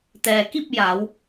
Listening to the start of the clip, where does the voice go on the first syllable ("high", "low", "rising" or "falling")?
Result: low